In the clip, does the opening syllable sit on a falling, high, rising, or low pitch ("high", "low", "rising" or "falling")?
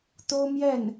high